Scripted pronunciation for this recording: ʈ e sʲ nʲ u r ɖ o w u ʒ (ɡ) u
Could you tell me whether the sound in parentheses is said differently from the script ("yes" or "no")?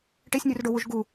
no